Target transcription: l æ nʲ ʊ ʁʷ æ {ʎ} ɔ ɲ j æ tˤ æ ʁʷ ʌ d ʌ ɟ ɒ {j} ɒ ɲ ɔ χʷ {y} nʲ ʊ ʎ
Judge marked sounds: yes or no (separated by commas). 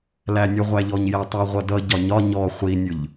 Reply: yes, no, no